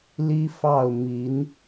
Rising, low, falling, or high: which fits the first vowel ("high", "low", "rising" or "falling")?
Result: high